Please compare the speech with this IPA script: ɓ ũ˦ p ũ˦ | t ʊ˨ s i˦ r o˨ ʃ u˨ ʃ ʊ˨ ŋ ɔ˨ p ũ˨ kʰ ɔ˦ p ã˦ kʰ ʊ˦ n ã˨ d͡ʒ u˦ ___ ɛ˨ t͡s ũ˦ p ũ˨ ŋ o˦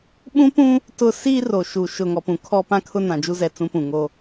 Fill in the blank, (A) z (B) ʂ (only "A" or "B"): A